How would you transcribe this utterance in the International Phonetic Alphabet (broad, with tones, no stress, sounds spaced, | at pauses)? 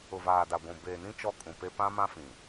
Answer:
ʊ˨ v aː˨ d a˨ ɡʷ ũ˨ b eː˨ n ĩ˦ t͡ʃ ɔ˦ kʼ ũ˨ p e˦ p ã˦ m ã˦ f ĩ˨